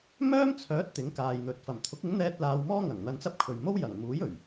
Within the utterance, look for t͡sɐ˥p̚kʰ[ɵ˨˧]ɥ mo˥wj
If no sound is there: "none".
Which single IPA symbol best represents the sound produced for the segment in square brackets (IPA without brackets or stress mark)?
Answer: ɵ˨